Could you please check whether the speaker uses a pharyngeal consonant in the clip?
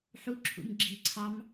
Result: yes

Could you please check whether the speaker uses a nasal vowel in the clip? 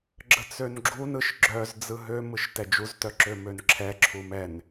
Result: no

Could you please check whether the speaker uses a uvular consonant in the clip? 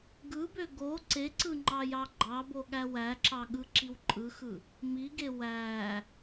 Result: no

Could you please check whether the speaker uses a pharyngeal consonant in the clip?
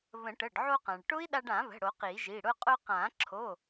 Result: yes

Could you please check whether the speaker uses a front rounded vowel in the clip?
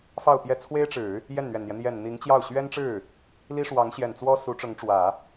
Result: no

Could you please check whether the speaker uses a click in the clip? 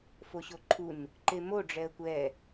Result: yes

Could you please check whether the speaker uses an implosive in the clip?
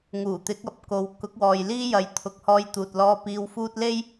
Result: no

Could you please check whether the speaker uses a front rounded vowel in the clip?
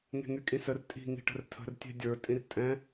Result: yes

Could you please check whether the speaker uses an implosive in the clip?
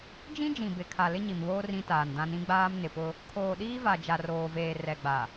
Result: yes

